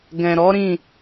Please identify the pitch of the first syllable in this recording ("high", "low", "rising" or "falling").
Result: low